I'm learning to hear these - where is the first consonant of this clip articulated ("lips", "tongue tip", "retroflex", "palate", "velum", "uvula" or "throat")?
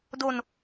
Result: tongue tip